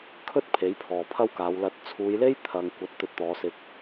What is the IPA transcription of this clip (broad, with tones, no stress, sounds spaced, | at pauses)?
kʰ ɵ˥ t̚ pʰ e˨˥ j pʰ ɔː˨ pʰ ɐ˥ w k aː˨˧ w l ɐ˨˥ t̚ t͡sʰ uː˨˧ j l e˥ j t̪ʰ ɐ˧ ŋ kʷ ɐ˨˥ t̚ t̪ ɵ˧ t̚ t̪ ɔː˨˧ s ɪ˧ k̚